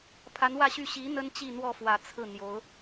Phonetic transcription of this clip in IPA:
pʰa˧˥nwä˥˧ɕy˥˩ ɕi˧˥ n̪ə˥nt͡ɕi˥˧n̪wɔ˥˩fwä˨˩ t͡sʰɹ̩˥˩ n̪jo˧˥ʊ̯

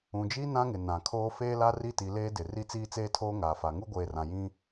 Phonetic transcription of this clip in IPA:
ũ˨d͡ʒi˦ nã˦ŋɪ˨ nã˨kʰoː˦ feː˦la˦ri˦ti˨ leː˦dɪ˨ ri˦t͡siː˦t͡seː˦tʰoː˦ ŋaː˨fa˨ŋu˦ ɡʷeː˨rã˨jĩ˦

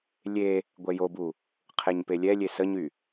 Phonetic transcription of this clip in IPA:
lʲe | ɡʷɛjobu | qʰeɲpelʲɛlʲe səɲy

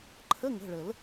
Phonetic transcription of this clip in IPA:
ǃʰə˧˥˧ŋə̤˩˧˩ɭə˨˩˦l

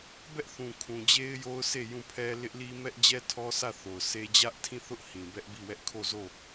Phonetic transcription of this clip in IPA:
bɛ˦ʔθũ˨ kʰũ˨d͡ʑe˦ɪ̯jo˦ʊ̯ se˦˨jũ˦˨pʰɛ˦ lɪ˦ʔli˦ mɛ˦ʔd͡ʑɛ˦tʰɔ˦sʰä˦˨ θo˨ʊ̯se˦ d͡ʑä˦ʔtʰĩ˦˨ θʊ˦ʔ hĩ˨bɛ˦ʔbi˦˨wɛ˦ʔ kʰo˦˨zo˦˨

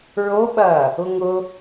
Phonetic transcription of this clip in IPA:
ɹoɓɐː | ʊŋʊ

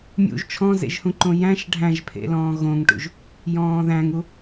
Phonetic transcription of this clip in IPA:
mʲṵʒ t͡ʃʰɔ̃zḛʒhũǃõ jæ̃ʃ ɖʱæ̃ʒpʰḛlɔ̃ː ɣõŋʈṵʒ | jɔ̃ːðæ̃ŋu

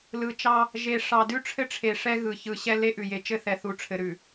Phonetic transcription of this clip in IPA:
lɯ˨t͡ʃɑ˦ | ʒe˨ʂɑ˨dʉ˦ ʈ͡ʂʰɘ˦ʈ͡ʂʰe˨ ʂɛ˦ɣɯ˨ çɯ˨ɕɛ˦ le˦ʔʉ˨ je˨t͡ʃɘ˦θɛ˨θu˨ ʈ͡ʂʰɘ˨ɾʉ˨

